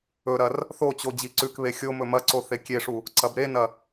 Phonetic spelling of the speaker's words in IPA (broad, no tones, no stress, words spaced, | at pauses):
ɵɾɐr | θot͡ɕo d͡ʑiǀʉkβe xʲo mɵmɐǀo θekʲeʂu | ǀɐbɾenɐ